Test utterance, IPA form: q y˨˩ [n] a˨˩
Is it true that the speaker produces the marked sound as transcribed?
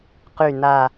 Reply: yes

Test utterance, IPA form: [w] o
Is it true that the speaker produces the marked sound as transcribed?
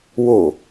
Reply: yes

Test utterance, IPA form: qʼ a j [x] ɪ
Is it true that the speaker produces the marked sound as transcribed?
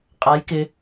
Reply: no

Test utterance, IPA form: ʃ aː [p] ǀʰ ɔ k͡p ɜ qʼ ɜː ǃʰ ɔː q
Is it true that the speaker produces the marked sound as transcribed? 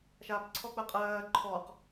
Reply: yes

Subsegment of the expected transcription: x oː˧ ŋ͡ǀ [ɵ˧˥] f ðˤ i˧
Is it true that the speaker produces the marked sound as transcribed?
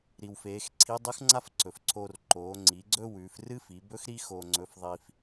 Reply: yes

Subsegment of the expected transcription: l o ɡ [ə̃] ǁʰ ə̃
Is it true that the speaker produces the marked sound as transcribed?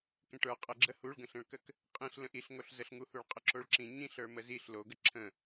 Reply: no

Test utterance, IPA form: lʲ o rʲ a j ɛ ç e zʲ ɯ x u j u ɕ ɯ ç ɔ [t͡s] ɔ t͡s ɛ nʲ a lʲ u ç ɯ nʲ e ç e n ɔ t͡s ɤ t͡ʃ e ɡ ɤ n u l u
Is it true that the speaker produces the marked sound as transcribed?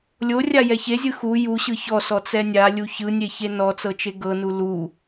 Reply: no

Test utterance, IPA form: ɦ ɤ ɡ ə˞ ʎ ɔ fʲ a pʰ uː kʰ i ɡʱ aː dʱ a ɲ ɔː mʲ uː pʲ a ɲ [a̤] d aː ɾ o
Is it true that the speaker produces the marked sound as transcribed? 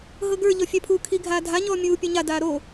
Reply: no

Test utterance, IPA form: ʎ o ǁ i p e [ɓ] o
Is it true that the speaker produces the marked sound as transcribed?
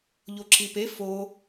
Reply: no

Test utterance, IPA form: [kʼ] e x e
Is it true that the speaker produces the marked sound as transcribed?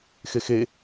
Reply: no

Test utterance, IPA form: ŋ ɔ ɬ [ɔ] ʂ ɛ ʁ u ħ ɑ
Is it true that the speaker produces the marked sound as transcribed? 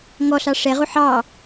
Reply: no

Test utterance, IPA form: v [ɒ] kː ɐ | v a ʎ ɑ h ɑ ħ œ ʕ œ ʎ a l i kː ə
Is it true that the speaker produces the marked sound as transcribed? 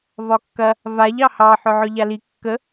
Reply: yes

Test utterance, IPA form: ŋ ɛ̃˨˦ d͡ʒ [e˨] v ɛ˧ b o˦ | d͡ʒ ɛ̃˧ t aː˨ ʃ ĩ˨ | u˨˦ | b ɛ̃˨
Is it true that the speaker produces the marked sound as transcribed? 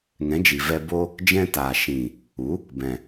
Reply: no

